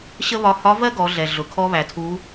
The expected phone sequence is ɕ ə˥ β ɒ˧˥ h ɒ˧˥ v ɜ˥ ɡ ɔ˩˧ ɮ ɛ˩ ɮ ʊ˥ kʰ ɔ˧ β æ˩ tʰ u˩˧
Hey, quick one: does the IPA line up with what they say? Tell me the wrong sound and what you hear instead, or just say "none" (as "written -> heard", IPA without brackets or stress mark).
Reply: ʊ˥ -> ʊ˩